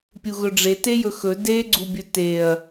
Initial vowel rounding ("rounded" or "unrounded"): rounded